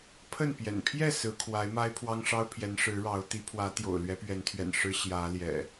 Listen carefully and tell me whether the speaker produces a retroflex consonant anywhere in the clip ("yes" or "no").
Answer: yes